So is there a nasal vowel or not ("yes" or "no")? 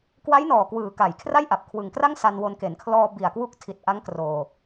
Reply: no